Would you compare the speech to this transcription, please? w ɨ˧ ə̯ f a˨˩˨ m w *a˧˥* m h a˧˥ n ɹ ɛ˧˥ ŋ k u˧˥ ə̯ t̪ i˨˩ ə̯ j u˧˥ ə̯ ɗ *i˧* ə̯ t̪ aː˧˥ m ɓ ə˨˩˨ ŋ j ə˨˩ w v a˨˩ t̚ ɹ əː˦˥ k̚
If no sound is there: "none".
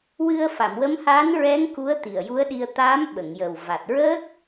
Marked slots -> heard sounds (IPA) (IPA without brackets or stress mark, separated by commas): ə˧˥, i˧